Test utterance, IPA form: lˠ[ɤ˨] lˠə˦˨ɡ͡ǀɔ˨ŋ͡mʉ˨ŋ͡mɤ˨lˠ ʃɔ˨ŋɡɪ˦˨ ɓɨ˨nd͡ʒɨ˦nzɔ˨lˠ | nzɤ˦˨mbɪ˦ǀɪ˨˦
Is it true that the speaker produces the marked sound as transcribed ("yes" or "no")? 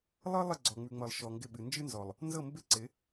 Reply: no